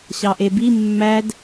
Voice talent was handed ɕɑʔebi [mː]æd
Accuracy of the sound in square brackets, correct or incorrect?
correct